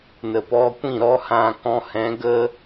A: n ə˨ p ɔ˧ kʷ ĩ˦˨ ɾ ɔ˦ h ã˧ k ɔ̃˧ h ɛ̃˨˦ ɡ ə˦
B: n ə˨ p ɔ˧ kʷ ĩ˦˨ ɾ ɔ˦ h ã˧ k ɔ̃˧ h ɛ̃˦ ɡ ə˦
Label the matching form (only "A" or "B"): A